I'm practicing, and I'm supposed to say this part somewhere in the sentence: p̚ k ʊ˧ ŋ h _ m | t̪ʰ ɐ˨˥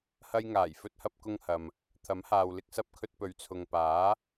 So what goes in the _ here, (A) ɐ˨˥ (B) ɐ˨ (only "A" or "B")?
B